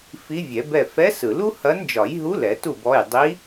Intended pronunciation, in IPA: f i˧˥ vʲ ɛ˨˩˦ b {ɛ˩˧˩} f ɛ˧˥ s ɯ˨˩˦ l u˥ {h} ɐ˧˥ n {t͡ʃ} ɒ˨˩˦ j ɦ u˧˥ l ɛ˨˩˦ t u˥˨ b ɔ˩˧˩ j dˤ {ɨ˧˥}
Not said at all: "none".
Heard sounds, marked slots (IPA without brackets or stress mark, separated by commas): ɛ˥˨, h, d͡ʒ, i˧˥